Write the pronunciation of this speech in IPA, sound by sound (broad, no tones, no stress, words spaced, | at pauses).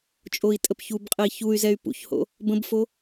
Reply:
t͡ʃʼoi̯tʼəpçubqʼəi̯ çuy̯zɛy̯ pṵçho̰ | bə̃bfo